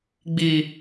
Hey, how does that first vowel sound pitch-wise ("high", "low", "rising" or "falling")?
high